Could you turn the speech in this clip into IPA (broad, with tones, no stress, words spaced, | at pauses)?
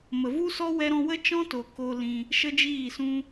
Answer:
mə˨vu˦sɔ˦ wɛ˧ɾɔ̃˧wə˦ t͡ʃɔ̃˦to˨ ko˧lĩ˧ | ʃə˦d͡ʒiː˦˨sũ˦